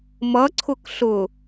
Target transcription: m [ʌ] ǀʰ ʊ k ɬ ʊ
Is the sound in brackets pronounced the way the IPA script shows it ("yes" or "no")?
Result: yes